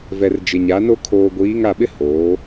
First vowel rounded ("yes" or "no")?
no